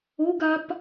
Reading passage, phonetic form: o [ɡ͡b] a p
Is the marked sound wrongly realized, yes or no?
yes